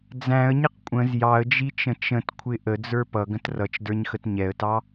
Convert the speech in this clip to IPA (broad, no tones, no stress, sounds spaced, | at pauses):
d͡z æ̃ ə̯ ɲ ɪ q kʷʼ ə̃ z j ɑ ə̯ d͡ʒ i t͡ʃ ə̃ t͡ʃ ə̃ t kʷʰ ɪ ʔ ə d͡z ə˞ p ʌ ɡ ə̃ t r ʌ t͡ʃ d ə˞ ɲ x ə t ɲ ɛ ə̯ t ɑ